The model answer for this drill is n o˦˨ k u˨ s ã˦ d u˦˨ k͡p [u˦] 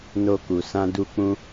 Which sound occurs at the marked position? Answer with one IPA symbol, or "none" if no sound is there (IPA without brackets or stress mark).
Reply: ũ˦